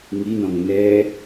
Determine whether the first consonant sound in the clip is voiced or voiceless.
voiced